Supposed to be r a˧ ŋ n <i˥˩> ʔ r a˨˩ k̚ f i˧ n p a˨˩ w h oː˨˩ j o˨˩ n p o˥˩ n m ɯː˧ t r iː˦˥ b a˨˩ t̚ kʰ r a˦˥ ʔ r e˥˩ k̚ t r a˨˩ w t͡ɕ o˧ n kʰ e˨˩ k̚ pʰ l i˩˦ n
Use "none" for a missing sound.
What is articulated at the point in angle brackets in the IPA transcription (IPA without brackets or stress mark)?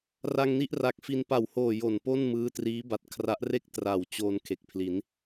i˥˩